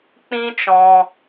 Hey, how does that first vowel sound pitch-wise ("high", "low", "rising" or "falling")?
high